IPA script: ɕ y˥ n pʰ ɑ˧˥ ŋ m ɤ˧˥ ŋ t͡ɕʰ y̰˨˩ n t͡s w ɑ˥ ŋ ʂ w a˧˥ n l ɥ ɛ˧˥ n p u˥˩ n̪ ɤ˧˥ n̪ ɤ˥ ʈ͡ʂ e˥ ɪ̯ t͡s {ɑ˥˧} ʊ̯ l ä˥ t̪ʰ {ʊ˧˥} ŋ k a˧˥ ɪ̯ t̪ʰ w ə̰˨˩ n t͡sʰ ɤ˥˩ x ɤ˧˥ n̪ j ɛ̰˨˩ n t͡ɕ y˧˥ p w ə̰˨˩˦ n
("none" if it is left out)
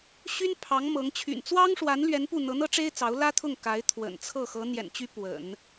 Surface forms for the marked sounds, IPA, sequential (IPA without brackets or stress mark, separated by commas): ɑ˧˥, ʊ˥˩